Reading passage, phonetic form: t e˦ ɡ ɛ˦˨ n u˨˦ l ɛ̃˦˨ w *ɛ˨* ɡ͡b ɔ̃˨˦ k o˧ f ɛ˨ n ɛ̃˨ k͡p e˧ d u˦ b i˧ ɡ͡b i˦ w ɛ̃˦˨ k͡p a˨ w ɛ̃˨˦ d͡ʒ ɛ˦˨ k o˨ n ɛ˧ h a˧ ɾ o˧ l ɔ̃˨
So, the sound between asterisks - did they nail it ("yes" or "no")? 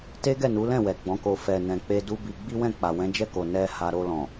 yes